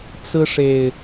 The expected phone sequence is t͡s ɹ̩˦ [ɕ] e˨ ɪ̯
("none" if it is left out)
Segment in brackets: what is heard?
ʂ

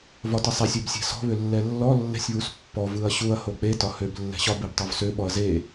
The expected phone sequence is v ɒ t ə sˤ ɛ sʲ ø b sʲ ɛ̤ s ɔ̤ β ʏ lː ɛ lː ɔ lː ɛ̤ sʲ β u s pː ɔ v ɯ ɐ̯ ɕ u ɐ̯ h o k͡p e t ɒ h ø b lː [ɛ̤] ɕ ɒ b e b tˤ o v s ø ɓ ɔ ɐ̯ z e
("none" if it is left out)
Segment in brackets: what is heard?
ɛ̤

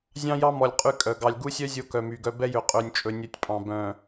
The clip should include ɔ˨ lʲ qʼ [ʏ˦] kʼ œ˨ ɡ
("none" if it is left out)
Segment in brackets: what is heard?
y˦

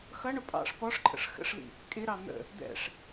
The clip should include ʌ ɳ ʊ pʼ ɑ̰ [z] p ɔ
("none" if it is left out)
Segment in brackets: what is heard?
ʂ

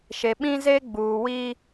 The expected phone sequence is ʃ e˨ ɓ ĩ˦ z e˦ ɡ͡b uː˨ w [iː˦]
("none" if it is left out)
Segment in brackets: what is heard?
i˦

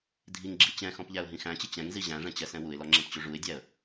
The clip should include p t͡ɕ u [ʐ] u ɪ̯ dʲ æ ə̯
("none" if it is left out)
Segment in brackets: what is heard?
ʐ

